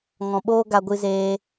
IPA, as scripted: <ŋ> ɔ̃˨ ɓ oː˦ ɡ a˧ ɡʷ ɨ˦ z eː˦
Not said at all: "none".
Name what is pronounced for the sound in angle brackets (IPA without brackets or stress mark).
ŋ